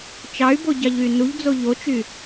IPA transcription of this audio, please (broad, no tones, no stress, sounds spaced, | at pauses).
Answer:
t͡ʃ ɑ y̯ b o ɟ ɑ ʎ y n u ʎ d͡z o ʎ o t͡ʃ y